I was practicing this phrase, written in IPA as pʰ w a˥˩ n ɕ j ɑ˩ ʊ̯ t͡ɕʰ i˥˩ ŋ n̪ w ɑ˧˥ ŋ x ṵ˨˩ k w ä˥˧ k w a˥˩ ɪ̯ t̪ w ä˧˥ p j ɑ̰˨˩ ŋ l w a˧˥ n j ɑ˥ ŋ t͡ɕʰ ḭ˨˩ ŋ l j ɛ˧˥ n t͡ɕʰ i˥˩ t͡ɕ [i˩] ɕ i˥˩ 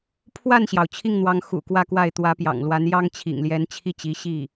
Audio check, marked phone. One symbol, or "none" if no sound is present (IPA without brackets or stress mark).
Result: i˧˥